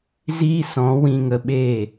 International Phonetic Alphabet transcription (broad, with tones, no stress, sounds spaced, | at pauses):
z iː˦ s ɔ̃˨˦ w ĩ˧ ŋ ə˧ ɓ eː˦˨